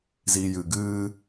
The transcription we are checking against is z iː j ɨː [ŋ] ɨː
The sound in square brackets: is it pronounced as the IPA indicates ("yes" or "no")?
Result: no